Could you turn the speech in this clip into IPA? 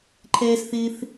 ǃʰ ɛː˥ s θ ɪː˥ θ

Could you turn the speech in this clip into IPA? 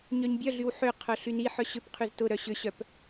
ɲ œ ɲ bʲ œ ɮ y w ħ ʏ qʰ œ ɬ y n i ħ œ ɕ ʏ p qʰ y z t ʊ ɾ œ ɕ ʏ ɕ œ p

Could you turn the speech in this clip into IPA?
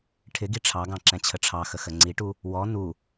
ʈʰ ɪ ɡ i ʈ͡ʂʰ ɑ ɡ ɑ̃ ǁ ɛ̃ t͡ɕʰ ə ʈ͡ʂʰ ɑ x ə x ə ŋ͡ǀ i ʈ u | w ɔ n u

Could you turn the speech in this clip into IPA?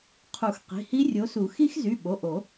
qʰ u˨˩˦ x q i̤˩˧˩ h i˦˥ rʲ o˨˦ s u˨˩˦ x i˦˥ x z y˩˧˩ ɓ o˩˧˩ ʔ o˨˩˦

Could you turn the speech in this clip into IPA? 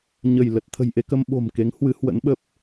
ɲ ə˧˩ j l ə˨˩ t̚ t̪ʰ ə̤˨˩ j ʔ e˧ k ə˧ m ɓ o̤˨˩ m k e˨˦ ŋ h w ɨ˨˦ h w ə̰˧˥ n ɓ ə˦˥ p̚

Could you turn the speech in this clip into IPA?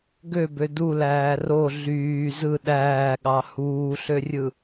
ɡ ø b ø d u l æː r o ɮ yː z ɯ ɗ æː ɠ ɑ h uː ɬ ø rʲ ɯ

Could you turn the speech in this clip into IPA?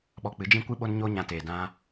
ɓ ɔ˧ k͡p ɨ˨˦ d͡ʒ ĩ˦ kʷ ɨ˦ ɓ o˦ n ɲ o˦ ɲ ã˧ t eː˨ d ã˧

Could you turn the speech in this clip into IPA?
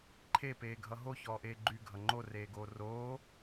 ǃʰ e p eː ɡʱ ʌ ɦ o ç ɔː ʔ eː ɡ͡ǃ y ɡʱ ʌ ŋ͡ǃ o r eː ɡ oː r oː

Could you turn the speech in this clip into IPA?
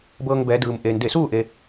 b ɤː˧ ŋ b ɛː˩˧ d ɯː˩ m ʔ eː˩ n d e˧˩ s uː˥˨ ʔ e˩

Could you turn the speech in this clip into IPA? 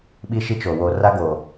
ɓ i˦ ʃ i˦ t͡ʃ o˨ w o˨ r a˦ ɡ o˨

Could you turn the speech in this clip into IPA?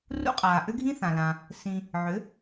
r ṵ˥ qʼ aː˩ ʔ ʏ˥ ɡʱ ĩ˥ θ ã˩ l ã˩ | s ĩ˧ | ʕ ʏ˩˥

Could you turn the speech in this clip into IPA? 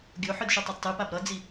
ɡʲ o ħ ɯ d ʃ u tˤ e d tˤ ɯ p a b ɾ ʌ d͡z i

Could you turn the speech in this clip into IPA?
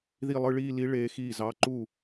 ð i˥˩ lˠ ɯ˥˧ ɭ iː˥˧ l i˧˥ ɭ eː˧˥ x iː˥˩ z ɑ˧˥˧ ǃ u˥˩

